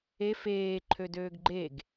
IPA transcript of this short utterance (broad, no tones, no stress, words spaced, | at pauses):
e feːǃʰø døːɡɡ͡ǃeɡ